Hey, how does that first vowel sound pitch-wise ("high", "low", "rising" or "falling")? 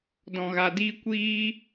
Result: low